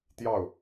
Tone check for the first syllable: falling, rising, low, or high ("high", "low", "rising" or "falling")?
falling